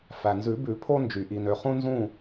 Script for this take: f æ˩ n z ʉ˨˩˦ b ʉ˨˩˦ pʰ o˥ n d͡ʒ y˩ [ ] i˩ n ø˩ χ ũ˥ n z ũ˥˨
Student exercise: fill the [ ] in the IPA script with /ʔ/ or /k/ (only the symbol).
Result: ʔ